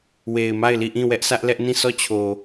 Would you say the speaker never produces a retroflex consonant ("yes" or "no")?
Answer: yes